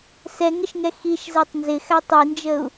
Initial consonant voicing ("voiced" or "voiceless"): voiceless